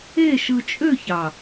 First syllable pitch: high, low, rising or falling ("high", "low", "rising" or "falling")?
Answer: falling